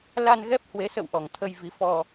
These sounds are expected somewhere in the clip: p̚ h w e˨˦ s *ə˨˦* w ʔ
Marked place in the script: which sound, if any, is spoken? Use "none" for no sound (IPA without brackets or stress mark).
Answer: ə̰˧˨